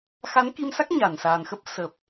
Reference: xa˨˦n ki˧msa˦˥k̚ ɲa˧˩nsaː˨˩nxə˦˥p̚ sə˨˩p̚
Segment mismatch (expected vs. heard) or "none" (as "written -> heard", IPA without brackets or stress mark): none